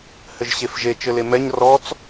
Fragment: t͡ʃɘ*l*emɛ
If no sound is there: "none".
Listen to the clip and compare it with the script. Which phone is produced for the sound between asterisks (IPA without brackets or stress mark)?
l